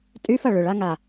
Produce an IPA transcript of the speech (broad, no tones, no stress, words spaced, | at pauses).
tʼyfɐ ɭʏɭaŋa